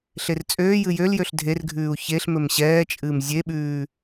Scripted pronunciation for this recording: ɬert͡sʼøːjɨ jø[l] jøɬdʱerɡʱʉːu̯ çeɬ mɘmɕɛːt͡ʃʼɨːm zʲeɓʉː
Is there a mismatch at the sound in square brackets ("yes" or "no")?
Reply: no